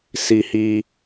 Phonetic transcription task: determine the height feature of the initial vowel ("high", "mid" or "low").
high